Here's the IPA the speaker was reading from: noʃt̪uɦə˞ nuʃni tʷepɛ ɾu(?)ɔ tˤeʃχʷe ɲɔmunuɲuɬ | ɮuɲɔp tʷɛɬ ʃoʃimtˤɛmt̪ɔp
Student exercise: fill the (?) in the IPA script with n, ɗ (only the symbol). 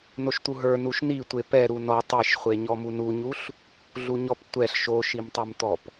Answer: n